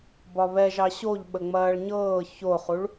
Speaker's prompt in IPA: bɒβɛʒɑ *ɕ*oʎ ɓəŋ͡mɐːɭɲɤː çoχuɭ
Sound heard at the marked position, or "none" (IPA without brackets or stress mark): ɕ